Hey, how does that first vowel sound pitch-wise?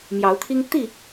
rising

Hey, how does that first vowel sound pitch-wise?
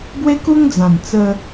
high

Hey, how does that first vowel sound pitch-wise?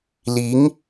rising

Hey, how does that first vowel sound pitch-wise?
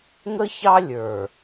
high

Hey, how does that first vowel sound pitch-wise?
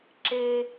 high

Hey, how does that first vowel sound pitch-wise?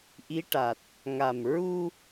rising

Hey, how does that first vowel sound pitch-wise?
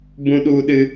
high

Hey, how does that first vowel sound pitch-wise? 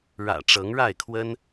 low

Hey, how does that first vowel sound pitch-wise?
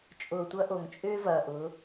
low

